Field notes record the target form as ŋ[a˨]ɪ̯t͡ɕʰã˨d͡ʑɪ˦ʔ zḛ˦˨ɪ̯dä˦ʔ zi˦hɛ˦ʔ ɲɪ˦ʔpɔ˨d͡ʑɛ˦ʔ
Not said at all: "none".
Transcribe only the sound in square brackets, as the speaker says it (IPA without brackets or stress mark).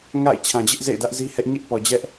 a̰˦˨